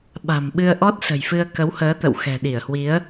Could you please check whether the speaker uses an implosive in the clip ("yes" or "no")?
yes